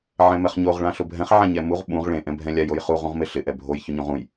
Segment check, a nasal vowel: present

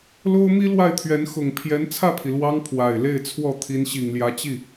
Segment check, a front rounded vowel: absent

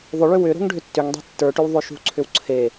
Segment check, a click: present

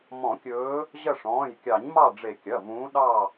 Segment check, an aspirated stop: absent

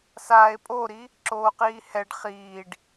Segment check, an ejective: present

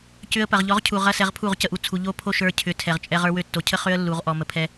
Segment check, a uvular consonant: present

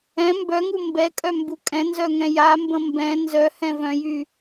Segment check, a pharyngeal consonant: absent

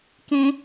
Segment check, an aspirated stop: absent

